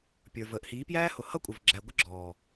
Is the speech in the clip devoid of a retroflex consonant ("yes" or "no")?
yes